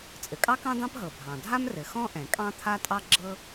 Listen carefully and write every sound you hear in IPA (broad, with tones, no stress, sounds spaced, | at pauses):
t͡sʼ ɘ˩ kʼ ɑ˥ k ɑ̃˥ d̪ ɑ̃˥ p ɦ ɤ˩ bʱ ɑ̃˩ dʱ a˥ m r ɘ˩ x ɔ̃˥ ʔ ɛ̃˩ kʼ ɑ̃˥ t̪ʰ a˥ tʼ ɑ˥ ɡ͡ǁ ɤ˥